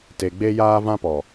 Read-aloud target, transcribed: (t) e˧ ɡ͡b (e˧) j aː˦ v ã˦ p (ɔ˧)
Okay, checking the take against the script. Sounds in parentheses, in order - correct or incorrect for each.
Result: correct, incorrect, incorrect

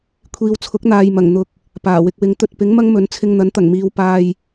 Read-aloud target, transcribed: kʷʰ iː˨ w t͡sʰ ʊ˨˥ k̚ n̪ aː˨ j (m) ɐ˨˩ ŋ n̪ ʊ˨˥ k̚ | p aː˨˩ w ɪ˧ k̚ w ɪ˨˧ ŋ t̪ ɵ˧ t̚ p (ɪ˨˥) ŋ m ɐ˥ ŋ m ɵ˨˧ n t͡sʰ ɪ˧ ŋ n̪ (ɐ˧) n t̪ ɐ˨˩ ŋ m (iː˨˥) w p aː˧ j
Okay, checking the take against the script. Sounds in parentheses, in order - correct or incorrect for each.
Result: correct, correct, incorrect, incorrect

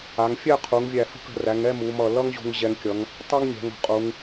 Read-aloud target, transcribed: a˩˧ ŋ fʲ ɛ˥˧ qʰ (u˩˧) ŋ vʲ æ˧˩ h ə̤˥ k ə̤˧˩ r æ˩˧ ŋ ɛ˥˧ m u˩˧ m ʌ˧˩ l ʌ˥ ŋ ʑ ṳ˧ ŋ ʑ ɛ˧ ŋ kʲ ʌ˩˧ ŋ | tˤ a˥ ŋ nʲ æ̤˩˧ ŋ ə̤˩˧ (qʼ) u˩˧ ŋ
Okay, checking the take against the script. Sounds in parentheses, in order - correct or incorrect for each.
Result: correct, correct

